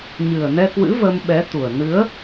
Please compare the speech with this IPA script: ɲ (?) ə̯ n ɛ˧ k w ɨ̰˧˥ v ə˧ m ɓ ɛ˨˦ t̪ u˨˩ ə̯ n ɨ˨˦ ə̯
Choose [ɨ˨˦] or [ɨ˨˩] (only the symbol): ɨ˨˩